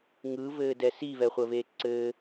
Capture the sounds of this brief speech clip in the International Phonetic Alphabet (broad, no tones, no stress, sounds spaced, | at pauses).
ŋ ɯ v ɘː d ɛ s i v ɛ χʷ ə v eː ǀ ɘː